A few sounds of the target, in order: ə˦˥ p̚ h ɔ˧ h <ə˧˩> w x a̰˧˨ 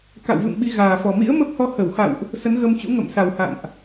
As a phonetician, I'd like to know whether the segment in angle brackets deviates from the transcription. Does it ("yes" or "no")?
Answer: no